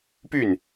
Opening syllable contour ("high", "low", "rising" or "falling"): falling